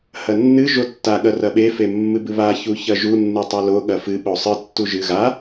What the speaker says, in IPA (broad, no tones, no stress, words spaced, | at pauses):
hɐnːɨ ʒotːa ɠɐrɐɓe femːɨbɨβa çuçɐʒu nːɨtˤɐlo ɠɐfɨ ɓosˤɨ tːuʒɨ ɣa